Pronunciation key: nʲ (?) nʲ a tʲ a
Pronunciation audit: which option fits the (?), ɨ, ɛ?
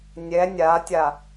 ɛ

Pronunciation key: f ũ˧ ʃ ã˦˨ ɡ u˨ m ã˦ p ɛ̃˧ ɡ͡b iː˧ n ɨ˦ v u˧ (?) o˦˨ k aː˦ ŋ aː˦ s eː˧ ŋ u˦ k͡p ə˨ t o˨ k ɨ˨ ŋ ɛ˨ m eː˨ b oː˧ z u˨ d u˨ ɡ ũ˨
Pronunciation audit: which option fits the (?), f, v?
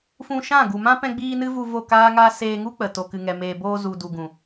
v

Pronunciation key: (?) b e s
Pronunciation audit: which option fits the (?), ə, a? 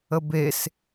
ə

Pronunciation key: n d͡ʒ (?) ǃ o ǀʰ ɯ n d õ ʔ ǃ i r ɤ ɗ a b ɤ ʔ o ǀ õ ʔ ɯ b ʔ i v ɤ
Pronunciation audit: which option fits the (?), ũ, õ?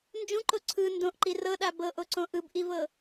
ũ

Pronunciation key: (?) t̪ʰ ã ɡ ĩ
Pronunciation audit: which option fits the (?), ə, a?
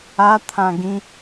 a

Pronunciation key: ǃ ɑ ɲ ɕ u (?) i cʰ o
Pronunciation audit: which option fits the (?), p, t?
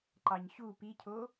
p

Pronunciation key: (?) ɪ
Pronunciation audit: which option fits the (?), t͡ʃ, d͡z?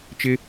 t͡ʃ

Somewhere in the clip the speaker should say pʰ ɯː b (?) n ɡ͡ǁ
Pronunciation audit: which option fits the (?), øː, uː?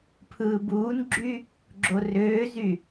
uː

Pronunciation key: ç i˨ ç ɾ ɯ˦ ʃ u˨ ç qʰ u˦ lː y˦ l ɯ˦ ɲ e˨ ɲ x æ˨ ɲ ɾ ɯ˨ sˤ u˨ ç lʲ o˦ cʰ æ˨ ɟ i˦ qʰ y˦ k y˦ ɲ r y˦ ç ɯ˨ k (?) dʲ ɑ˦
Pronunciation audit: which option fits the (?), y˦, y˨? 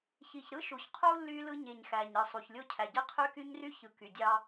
y˨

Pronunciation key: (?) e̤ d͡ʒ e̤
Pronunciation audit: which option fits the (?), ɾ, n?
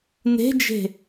n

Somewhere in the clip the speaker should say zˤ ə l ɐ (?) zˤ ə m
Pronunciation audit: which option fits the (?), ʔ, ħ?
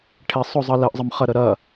ʔ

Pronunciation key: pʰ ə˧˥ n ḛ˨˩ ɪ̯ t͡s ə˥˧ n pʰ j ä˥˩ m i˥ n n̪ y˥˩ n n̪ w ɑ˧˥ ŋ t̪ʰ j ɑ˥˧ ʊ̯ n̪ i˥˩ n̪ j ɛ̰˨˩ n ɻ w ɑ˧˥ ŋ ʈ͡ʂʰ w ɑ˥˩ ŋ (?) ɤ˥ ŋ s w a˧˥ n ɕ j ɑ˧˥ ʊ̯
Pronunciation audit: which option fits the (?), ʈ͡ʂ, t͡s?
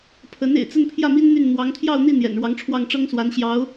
ʈ͡ʂ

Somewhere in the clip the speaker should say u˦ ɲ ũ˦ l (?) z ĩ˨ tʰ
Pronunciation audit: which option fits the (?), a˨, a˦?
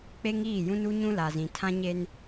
a˨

